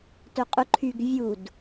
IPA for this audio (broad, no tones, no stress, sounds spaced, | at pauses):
t œ qʼ ʊ ǃʰ y ɡ vʲ u d